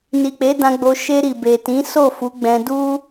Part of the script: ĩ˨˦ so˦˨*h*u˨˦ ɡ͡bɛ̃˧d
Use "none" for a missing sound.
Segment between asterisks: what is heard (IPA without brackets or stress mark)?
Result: f